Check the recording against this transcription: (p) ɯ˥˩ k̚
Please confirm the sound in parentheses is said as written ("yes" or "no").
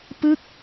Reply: yes